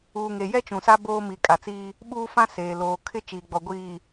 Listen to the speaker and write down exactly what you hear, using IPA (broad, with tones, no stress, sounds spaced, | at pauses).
uː˨ ŋ e˨ j ɛ˦ t͡ʃ ũ˨ s a˦ b oː˦ m i˨ kʼ a˨ t͡s iː˦ | ɓ uː˦ f ã˦ s eː˨ l oː˨ kʰ ɪ˦ t͡ʃ iː˨ ɡ͡b ɔ˨ ɡʷ iː˨